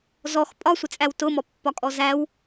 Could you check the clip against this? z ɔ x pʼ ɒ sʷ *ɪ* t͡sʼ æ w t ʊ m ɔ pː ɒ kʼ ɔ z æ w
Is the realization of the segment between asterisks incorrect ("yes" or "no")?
no